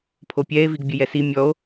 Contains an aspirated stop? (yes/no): yes